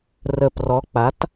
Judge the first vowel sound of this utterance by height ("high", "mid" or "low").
mid